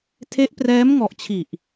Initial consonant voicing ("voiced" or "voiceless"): voiceless